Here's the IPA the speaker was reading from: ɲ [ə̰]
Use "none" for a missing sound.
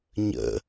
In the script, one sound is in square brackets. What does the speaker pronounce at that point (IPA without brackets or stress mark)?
ə̰